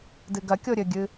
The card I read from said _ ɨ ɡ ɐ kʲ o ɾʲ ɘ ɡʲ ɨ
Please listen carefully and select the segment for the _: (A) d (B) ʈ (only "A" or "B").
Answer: A